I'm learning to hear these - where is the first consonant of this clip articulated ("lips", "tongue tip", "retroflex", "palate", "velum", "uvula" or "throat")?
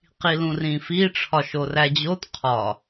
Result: uvula